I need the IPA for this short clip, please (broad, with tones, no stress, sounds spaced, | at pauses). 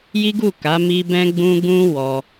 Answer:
j i˦ ɡ u˦˨ k a˨˦ m i˧ b ɛ̃˦ ɡ͡b ũ˦ ɡ ũ˦ w ɔ˧